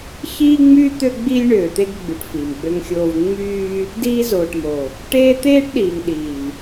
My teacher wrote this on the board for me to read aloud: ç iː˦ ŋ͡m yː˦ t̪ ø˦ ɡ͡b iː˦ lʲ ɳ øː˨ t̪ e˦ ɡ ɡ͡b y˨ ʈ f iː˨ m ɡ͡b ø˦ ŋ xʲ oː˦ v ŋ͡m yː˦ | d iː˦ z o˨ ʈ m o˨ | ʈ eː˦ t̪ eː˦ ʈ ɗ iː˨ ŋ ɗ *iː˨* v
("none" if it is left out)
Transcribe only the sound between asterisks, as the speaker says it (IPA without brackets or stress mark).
iː˨